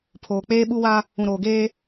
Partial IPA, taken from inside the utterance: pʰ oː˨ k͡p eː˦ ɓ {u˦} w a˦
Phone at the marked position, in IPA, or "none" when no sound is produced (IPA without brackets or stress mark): u˦